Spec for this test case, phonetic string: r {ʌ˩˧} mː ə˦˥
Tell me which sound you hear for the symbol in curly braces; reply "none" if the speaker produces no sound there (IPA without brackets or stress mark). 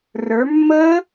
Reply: ə˞˩˧